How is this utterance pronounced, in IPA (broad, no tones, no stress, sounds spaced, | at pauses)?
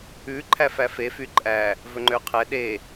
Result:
ʉ ǃʰ æ f æ f e f y ǃʼ æ | v ɵ ŋ͡ǃ ø qʰ ɛ ɗ e